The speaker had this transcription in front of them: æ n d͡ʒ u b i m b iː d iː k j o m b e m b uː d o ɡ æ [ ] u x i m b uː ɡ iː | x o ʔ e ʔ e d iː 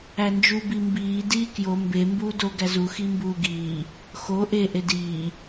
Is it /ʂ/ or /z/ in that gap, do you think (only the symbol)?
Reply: z